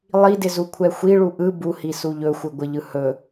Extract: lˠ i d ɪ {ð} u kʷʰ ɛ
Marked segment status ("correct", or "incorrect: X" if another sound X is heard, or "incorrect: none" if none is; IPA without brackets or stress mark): incorrect: z